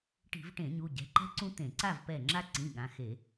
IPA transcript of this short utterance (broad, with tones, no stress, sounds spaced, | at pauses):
ʈ i̤˧˩˧ v ʈ ẽ˧˩˧ ɲ u˩˧˩ ɟ ɛ̤˩˧˩ ǃ ɛ̤˦ ǀ ũ˦ t̪ ẽ˧˩˧ ǀ a˥˨ v p ɛ˧˩ ŋ͡ǁ a˦ ǀ ĩ˩˧˩ ɠ ã˩˧˩ x e˧˩˧